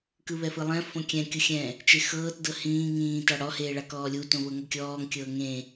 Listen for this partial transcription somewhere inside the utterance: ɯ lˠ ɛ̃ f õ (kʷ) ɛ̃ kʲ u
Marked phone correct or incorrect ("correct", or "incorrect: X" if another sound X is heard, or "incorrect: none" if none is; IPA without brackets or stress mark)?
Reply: incorrect: kʲ